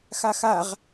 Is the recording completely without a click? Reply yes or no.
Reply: yes